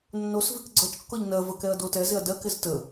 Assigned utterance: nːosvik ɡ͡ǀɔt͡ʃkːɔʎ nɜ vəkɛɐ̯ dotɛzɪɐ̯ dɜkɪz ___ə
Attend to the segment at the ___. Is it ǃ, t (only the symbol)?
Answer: t